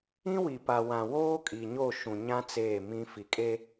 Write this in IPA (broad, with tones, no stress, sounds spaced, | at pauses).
ĩ˦ w i˨ p a˨ w ã˨ w oː˦ kʼ i˨ ɲ o˦˨ ʃ ũ˨ ɲ ã˦ t͡s eː˦˨ m ĩ˦ f i˨ kʼ e˦